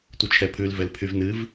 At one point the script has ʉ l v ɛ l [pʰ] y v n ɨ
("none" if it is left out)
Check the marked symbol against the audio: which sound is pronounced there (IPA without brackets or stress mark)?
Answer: pʰ